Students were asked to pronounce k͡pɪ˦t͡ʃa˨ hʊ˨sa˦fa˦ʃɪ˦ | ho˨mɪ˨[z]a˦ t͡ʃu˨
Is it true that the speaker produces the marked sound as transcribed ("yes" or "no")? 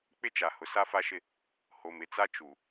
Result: no